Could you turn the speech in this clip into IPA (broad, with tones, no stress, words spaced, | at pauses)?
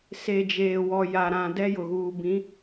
se˨d͡ʒeː˨wɔ˨ja˨ ɾã˨ dɛ˦jʊ˨ɣuː˨ bĩ˨˦